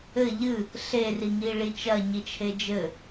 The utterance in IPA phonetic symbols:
ɘ ʎ ɨ | ɬ e r i ŋ i ɭ i t͡ʃ ɐ ɲ i t͡ʃʰ e d͡ʒ ɘ

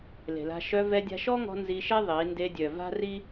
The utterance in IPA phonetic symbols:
l e̤˨ l a̤˧ ʃ œ˧ v ɛ˧ dʲ a̤˧ ʃ ɔ˦ ŋ ɔ̤˧ n z i˧ ʃ e˦ ðˤ i˨˦ n d e˧ dʲ œ˨ v a̤˦ r i˦

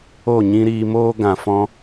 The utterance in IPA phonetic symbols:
o˦˨ ɲ ĩ˦ ɾ iː˧ m oː˦ ɡ ã˨ f ɔ̃˧

